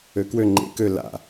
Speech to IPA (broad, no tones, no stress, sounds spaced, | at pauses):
ø k w ø ŋ͡ǃ ḛ k ø l a̰